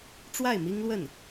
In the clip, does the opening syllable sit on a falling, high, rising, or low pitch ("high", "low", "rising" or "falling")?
falling